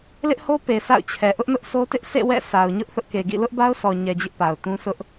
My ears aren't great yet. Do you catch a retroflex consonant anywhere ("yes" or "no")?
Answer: no